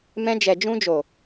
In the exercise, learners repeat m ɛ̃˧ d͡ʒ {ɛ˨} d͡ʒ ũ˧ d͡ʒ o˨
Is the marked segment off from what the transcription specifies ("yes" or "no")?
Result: no